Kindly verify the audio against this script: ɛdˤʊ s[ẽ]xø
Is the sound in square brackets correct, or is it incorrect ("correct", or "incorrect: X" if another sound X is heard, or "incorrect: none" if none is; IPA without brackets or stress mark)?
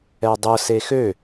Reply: incorrect: e